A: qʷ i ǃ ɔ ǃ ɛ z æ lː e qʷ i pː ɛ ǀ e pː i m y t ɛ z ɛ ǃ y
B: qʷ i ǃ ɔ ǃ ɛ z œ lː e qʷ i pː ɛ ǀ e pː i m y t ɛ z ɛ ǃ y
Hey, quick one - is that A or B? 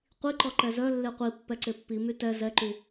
B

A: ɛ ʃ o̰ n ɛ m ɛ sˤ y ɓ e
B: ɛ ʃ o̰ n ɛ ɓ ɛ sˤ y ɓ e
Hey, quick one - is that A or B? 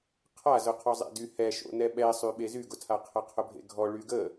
B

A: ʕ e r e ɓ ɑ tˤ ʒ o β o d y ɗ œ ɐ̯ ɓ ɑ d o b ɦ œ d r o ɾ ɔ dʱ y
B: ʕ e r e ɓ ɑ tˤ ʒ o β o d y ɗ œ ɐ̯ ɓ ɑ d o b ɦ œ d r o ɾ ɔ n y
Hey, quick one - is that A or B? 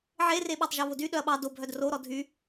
A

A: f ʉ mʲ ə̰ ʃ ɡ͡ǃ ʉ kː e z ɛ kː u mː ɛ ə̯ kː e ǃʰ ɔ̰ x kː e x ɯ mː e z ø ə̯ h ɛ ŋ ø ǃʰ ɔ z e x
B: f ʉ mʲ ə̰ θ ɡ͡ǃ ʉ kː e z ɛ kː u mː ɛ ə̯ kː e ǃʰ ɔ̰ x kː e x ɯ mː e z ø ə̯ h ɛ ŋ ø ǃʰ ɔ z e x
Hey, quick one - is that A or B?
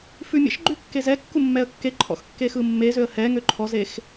A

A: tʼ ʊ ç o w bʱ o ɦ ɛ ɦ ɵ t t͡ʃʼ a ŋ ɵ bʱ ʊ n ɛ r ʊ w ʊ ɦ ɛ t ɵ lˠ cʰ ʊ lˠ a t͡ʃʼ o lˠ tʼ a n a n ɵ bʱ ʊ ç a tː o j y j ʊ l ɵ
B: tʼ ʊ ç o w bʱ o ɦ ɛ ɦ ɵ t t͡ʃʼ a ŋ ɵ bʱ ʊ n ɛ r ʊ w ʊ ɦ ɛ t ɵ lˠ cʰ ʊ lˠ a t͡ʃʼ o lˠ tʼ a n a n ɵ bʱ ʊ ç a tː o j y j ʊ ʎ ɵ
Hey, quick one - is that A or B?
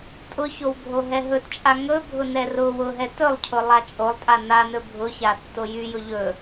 B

